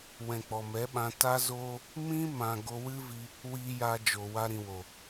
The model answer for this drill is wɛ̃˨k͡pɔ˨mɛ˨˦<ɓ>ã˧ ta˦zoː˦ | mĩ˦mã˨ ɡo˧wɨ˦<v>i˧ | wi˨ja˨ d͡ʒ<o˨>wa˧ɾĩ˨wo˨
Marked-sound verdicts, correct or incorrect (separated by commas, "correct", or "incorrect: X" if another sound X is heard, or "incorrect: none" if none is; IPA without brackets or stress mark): correct, correct, correct